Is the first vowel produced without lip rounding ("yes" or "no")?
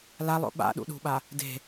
yes